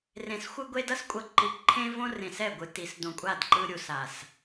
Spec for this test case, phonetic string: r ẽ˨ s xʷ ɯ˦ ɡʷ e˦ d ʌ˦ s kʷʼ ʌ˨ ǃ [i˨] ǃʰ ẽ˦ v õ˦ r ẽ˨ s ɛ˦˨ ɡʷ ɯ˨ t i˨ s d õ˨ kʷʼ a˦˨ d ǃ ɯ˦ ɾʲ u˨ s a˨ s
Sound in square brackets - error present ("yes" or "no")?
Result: no